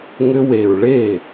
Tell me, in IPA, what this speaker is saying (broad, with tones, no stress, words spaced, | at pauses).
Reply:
ŋʏ˧we˨ɹ ɭe˦˨